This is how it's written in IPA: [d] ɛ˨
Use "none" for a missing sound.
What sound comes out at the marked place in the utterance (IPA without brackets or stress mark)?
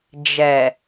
d͡ʒ